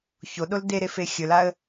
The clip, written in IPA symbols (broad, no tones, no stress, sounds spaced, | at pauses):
ç o ɗ o l d e ɾ e f e xʲ ɵ l a ə̯